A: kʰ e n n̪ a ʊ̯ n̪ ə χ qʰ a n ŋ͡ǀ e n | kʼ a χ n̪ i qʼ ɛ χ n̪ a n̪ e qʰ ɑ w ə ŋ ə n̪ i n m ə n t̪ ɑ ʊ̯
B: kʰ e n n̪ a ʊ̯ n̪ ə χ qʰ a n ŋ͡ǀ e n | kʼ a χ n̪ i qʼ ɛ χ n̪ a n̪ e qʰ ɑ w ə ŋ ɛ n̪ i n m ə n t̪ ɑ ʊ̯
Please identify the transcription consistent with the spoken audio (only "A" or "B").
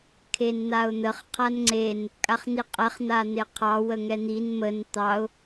B